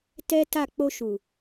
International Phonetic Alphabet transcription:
tɛ˦ta˦˨ k͡po˧ʃu˨

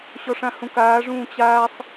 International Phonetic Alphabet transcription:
ɕɔʂãhũkaː ʐũːt͡ɕaːsˤ

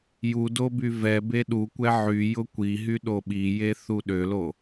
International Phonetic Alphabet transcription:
judo byvɛbe ɗukʷɛ ʕyjʊ kʷiɦy ɗoɓije θuɗølo

